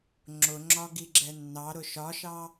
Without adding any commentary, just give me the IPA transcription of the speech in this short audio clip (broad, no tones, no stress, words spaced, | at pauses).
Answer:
ŋ͡ǁʊŋ͡ǁɒɡiɡ͡ǁɛ nːɑɾʊ ʃɒʃɑ